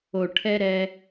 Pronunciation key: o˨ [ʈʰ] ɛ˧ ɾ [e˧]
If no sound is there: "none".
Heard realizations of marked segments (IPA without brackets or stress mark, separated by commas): ʈʰ, ɛ˧